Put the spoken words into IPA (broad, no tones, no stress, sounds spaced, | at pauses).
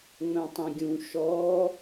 ŋ͡m œ̃ tˤ ĩ ɡʲ ũ ʃ ɔ